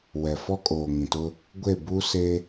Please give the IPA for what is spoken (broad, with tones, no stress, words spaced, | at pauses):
wɛ˨fɔ˦kʼoː˨ ŋĩ˨tʊ˦ | ɡʷe˦˨buː˦ se˦